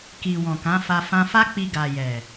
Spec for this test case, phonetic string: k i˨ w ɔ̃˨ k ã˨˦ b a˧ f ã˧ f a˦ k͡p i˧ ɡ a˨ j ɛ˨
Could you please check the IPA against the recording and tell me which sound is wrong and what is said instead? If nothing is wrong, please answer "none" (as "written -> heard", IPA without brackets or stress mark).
b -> f